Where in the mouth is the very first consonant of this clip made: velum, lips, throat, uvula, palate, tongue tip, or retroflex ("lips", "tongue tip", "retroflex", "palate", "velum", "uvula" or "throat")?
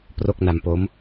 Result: lips